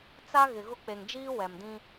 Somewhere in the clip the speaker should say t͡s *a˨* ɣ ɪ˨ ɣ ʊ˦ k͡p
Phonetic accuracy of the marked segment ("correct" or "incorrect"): incorrect